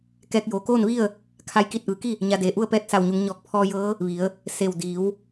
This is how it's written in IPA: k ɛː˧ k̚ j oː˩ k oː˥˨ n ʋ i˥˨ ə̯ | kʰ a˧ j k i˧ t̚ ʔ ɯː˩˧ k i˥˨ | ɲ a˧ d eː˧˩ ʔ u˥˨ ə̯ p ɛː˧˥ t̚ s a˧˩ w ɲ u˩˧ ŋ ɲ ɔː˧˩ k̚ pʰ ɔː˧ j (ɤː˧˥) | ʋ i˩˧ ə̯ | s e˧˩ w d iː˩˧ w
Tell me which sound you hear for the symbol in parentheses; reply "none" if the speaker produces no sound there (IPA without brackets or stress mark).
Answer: ɤː˧˥